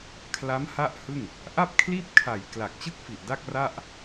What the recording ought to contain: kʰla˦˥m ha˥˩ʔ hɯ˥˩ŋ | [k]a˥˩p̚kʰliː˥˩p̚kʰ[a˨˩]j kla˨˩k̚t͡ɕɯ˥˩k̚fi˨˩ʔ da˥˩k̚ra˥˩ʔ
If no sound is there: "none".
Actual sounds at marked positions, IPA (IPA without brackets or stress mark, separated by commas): ʔ, a˨˩